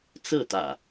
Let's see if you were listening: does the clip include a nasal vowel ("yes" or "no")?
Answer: no